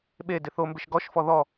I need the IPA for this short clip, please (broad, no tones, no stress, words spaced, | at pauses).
ɓe dɪθombɪʃ ɡɔʃfɔ ðɔ